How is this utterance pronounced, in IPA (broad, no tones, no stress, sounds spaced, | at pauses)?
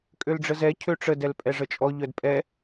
kʼ ø l ɖ͡ʐ ə z ɛ cʰ ø ʈ͡ʂ ə d ɛ l pʼ ɛ ʐ ə t͡ʃʼ ɔ ʎ œ d pʼ ɛ